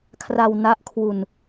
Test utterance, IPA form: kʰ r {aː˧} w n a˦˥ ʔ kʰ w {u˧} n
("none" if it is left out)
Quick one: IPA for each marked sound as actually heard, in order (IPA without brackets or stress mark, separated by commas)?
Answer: a˧, u˧